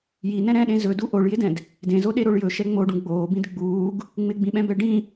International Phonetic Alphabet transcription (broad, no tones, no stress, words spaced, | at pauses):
jinɛ̃ ɾɛ̃ɗẽ zɵdu ʔoɭjɪdɛ̃d | dẽzoɗeɾoɭ jɵʃɛ ŋ͡moɖũ ɡ͡boːbĩd ɡ͡buːɡ | ŋ͡mɪɡ͡bĩɓɛ̃bɛ ɖĩ